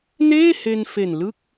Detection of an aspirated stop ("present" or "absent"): absent